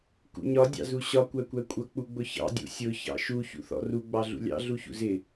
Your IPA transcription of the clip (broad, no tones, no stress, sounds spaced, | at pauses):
k ṵ ɲ ɒ dʲ ɑ̰ z u ɕ ɒ kʷ æ kʷ æ kʷʼ ʌ k͡p u ɡ͡b ʊ ç ɑ̰ dʲ ṵ sʲ ʊ ç ɑ̰ ʃ u ç ṵ θ ɔ̰ r u ɡ͡b ɑ ɮ ṵ lʲ ɑ̰ ɮ u ç ṵ z ɪ